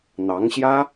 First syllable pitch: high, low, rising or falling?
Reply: rising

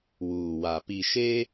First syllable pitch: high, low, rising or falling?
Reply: low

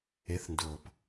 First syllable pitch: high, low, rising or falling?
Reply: rising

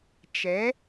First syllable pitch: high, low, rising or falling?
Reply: rising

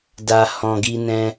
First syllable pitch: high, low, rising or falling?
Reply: low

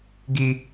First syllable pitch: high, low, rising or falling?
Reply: low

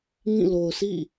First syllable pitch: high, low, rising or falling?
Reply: falling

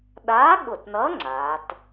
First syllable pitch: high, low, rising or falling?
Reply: rising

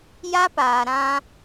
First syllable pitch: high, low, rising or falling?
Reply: high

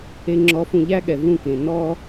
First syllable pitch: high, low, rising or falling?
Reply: low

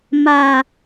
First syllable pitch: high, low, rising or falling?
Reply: low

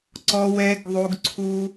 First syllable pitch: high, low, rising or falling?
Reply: low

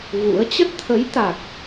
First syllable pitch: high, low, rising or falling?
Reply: rising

